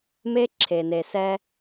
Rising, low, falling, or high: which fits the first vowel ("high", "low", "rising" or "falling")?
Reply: high